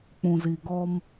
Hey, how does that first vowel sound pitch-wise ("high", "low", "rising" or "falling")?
low